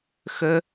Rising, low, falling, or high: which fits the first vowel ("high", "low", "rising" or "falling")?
high